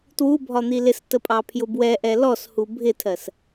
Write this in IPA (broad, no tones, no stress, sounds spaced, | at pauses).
t w u bʱ ɒ n̪ i l ɪ s t ə pʼ ɑ pʰ j ʊ b w ɛ ʔ ɛ l ɔ s h u bʱ ɪ tʰ ɜ s